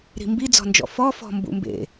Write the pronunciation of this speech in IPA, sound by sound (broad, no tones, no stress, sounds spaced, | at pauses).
ɾ i̤ m b i d͡z ɔ̤ n d͡ʒ ɔ̰ f ɔ f ɔ̤ m b ṵ m b ḛ